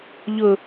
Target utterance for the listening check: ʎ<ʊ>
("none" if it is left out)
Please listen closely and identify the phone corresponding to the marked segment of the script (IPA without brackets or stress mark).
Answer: ʊ